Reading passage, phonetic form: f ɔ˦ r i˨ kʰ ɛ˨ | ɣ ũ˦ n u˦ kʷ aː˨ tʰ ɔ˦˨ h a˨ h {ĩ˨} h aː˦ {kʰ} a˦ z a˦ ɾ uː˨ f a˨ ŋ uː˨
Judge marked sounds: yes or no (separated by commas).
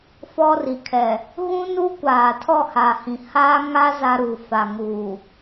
yes, no